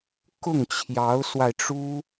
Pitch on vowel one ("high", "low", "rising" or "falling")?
falling